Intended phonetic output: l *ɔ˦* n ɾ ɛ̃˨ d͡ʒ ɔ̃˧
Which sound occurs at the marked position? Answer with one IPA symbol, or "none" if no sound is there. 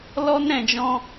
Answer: ɔ˦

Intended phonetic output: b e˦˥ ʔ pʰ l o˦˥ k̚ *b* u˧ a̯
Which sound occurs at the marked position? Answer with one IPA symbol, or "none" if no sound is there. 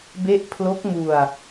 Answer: m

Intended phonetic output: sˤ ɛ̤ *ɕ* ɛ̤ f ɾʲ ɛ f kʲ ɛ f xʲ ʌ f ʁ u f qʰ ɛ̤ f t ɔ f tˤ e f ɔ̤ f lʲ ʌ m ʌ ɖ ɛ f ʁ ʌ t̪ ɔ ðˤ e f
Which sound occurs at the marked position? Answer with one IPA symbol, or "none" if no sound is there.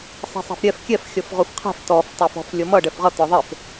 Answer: sˤ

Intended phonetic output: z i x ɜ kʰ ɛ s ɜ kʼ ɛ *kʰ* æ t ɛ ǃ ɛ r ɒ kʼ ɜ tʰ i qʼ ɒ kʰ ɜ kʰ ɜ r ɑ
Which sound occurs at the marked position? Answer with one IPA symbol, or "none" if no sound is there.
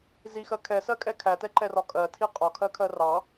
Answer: kʰ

